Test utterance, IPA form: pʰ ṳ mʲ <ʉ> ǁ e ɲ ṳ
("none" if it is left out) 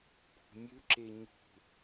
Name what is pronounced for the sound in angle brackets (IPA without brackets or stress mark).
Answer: ʉ